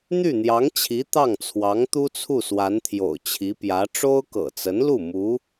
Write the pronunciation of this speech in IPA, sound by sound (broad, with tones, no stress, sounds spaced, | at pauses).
n̪ y˥˩ n̪ j ɑ˧˥ ŋ t͡ɕʰ i˧˥ t̪ ɑ˥˩ ŋ t͡sʰ w ɑ˧˥ ŋ t̪ u˥ t͡sʰ u˥˩ s w a˧˥ n t̪ʰ j o̰˨˩ ʊ̯ t͡ɕʰ i˧˥ p j ä˧˥ ʈ͡ʂ o˥ ʊ̯ k ɤ̰˨˩ t͡s ə˧˥ n l u˥˩ m u˧˥